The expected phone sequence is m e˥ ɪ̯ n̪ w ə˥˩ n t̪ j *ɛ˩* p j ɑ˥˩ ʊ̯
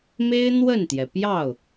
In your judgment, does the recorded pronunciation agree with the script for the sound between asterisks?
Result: yes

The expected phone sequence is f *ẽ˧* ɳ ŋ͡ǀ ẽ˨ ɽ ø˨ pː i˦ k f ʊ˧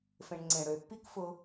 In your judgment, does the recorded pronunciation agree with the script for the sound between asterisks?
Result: yes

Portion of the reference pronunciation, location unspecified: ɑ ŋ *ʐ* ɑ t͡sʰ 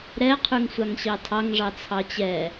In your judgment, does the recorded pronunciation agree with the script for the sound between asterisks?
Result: yes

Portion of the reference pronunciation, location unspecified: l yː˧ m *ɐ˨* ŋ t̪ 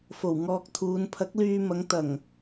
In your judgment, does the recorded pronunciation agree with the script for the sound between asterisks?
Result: no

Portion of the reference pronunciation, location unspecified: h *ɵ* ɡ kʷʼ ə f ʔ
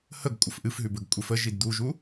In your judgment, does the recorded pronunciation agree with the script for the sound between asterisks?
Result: no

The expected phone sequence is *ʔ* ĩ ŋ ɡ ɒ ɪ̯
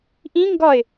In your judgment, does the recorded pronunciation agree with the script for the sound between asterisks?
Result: yes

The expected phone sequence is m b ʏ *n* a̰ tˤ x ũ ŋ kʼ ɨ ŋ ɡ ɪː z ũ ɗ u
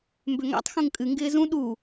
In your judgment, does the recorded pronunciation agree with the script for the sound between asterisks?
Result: no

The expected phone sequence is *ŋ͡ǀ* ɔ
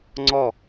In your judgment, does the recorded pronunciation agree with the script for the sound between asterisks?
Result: yes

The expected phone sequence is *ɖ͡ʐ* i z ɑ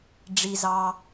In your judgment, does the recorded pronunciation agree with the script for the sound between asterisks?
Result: yes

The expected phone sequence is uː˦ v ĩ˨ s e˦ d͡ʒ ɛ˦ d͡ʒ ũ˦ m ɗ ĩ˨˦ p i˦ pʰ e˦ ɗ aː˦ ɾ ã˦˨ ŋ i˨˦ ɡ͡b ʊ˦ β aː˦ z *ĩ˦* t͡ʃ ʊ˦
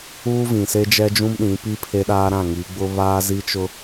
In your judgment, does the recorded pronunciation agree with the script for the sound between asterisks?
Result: no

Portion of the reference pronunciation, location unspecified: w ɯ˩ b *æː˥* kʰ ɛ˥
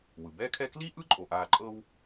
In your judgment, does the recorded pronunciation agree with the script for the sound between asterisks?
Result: no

